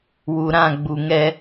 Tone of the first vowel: low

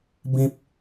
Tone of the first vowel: high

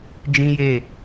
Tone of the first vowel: high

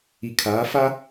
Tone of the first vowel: low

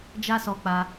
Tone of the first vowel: high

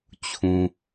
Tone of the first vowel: low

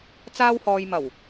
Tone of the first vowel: high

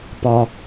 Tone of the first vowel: high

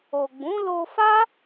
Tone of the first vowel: low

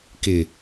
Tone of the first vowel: low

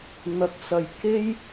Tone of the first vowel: rising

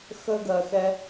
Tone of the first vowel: high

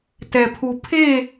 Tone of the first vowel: low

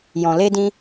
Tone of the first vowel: low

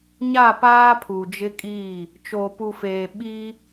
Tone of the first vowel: falling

